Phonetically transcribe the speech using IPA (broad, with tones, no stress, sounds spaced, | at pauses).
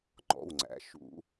ŋ͡ǃ ɔ̰˩˧˩ w ŋ͡ǀ æ̰˩˧˩ ʃ ṵ˨˩˦